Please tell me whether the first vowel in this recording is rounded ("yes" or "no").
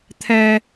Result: no